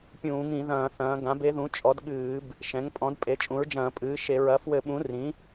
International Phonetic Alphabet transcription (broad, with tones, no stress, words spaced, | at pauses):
pʲũː˧˩˧ŋĩ˧˩˧ðɐ̃ː˧˩˧ θɐ̃ː˩˥ ɡã˩˥be˩˥ ðũ˩˥t͡ʃʼɔ˩˥dɠɨː˧˩˧b | ʃɛ̃˩˥ŋpʼɔ̃˩˥dpʼe˩˥ t͡ʃʼũ˩˥ɹd͡ʒɐ̃ː˧˩˧pʼɨː˩˥ʃe˧˩˧ ɹɐ˩˥fwɘ˧˩˧ɓũ˩˥ rĩ˩˥